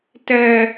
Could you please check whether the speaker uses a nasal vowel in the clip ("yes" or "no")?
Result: no